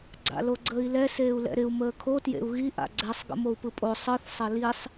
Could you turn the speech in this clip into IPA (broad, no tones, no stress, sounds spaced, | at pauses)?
ɡ͡ǀ a̰ l o ɡ͡ǀ əː i̯ l ɛ s eː u̯ l ɛ̰ ɾ ɪ u̯ m əː kʰ o t j ḛ u̯ ɣ i ʔ a̰ ɡ͡ǀ ɛ sˤ ɡ ə̰ m o u̯ p ɯ pʼ o sˤ ɯ θ sˤ ə l i sˤ